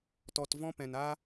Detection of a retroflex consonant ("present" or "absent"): absent